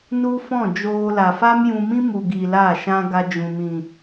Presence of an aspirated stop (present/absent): absent